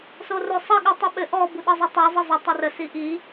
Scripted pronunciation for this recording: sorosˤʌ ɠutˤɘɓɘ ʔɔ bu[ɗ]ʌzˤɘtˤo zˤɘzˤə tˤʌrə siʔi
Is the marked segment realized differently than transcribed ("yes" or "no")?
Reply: no